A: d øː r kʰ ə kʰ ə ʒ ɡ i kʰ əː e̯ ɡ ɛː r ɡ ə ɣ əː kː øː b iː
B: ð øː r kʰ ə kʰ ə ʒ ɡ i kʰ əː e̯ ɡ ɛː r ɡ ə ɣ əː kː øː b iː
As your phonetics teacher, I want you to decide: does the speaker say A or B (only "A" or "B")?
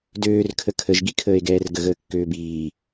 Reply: A